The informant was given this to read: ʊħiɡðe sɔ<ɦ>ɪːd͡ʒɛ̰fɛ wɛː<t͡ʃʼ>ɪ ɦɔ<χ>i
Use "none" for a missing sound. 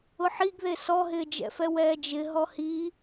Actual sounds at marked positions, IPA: ɦ, d͡ʒ, h

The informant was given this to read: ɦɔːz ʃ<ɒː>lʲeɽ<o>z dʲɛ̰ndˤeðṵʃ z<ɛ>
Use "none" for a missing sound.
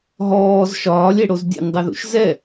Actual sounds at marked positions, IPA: ɒː, o, ɛ

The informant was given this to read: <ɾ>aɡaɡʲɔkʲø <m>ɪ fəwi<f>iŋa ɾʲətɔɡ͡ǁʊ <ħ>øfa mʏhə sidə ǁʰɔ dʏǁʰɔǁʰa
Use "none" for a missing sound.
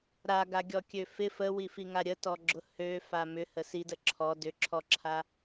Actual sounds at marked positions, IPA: ɾ, f, f, h

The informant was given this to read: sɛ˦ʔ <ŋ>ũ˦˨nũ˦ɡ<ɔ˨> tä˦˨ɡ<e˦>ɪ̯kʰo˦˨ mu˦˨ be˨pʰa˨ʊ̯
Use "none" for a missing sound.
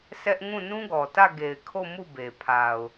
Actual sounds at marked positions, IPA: ŋ, ɔ˨, e˨

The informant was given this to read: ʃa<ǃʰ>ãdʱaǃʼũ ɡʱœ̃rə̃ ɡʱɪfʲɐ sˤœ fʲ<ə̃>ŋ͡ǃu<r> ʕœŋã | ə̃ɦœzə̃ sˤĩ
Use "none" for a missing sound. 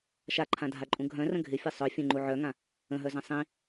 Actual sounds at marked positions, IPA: ǃʰ, ə̃, none

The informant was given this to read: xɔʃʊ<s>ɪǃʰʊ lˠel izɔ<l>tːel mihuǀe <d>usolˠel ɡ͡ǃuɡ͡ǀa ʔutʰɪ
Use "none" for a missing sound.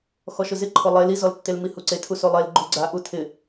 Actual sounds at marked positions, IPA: z, l, tʰ

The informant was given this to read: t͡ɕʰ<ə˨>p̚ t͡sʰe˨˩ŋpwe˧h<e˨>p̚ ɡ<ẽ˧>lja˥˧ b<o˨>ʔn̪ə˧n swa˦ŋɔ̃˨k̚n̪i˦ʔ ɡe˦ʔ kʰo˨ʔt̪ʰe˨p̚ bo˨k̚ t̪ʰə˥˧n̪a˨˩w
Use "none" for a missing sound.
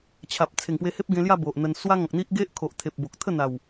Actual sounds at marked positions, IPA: a˨, e˦, ẽ˧, o˨

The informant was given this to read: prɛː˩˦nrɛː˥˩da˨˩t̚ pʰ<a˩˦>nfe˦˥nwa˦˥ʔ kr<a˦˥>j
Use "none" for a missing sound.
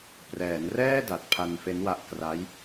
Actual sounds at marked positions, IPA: a˧, a˦˥

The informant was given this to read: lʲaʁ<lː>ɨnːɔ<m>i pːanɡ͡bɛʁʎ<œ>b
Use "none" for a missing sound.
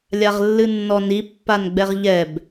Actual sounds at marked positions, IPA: lː, n, ɛ

